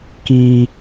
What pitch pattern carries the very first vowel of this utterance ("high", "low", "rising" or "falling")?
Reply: low